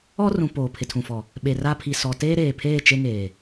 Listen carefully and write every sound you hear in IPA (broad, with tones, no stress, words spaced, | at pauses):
ɔ˦rũ˨ poː˨pʰɪ˨tʰũ˨fɔ˨ | ɓe˨ra˦ pʰi˨sɔ˨ teː˦ɾeː˨pʰeː˦˨ t͡ʃe˦ŋeː˨